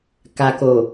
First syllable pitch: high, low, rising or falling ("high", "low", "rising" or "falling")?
low